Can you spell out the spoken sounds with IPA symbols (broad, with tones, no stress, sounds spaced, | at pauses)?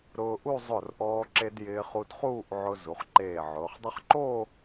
ɾ ʊː˧ ʔ u˥˧ zˤ ʊ˧˩ r ʔ ɔː˧ ǁ e˧ d j ɪː˧ χ u˧ d χ uː˥˧ ʔ ʕ ʊ˧ z u˩˧ χ ǃ eː˧˩ ʕ ʊː˩˧ χ dˤ ʊ˥ χ ǃ o˥˧